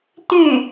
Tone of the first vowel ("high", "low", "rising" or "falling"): falling